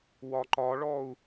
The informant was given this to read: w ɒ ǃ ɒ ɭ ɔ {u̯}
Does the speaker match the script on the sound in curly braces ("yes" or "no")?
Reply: yes